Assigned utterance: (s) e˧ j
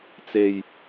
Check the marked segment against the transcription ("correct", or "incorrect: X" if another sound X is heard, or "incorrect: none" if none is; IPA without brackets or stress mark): incorrect: t͡s